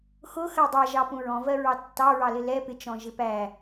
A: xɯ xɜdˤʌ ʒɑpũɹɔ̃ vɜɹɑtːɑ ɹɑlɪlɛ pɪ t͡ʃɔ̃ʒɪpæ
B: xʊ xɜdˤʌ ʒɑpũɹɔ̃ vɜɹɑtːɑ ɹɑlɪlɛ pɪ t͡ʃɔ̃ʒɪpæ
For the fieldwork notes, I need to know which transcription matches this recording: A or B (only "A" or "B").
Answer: B